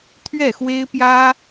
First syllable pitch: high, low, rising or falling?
falling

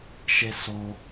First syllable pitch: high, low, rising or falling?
high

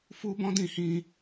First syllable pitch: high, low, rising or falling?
high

